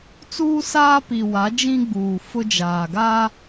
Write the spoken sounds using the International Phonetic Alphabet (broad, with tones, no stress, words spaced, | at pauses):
t͡suː˦saː˦pi˨wa˨˦ d͡ʒĩ˦ɡ͡buː˨ fʊ˦d͡ʒaː˨ɡaː˦